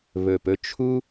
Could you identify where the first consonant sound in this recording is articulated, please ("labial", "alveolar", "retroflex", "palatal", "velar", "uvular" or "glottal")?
labial